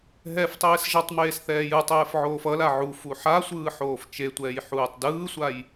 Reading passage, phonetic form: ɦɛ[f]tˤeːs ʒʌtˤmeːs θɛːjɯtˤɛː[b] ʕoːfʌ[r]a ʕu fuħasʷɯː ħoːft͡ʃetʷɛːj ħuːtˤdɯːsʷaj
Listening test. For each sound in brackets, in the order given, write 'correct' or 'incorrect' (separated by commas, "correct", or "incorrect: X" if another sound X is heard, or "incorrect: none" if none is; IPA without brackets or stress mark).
correct, incorrect: f, incorrect: l